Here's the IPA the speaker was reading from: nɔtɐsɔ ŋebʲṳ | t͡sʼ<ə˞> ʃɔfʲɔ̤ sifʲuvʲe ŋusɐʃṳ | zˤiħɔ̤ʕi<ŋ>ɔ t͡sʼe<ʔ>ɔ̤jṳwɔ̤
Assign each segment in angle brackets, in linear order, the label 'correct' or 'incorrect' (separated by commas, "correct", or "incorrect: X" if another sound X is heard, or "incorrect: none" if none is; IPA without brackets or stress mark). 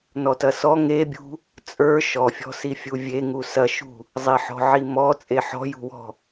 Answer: correct, incorrect: m, incorrect: ħ